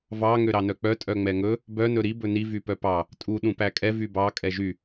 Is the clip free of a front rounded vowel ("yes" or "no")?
no